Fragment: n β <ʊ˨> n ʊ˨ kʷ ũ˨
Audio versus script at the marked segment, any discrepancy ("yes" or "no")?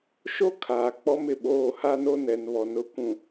yes